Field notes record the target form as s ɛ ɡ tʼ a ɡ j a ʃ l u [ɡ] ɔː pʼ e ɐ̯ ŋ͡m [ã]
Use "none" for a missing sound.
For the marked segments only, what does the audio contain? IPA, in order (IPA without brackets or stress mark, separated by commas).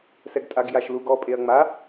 ɡ, a